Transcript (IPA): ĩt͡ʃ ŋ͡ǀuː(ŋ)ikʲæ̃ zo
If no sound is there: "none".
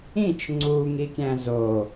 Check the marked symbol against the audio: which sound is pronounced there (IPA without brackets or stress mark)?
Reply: ŋ